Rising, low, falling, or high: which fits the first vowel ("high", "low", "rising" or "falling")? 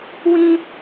high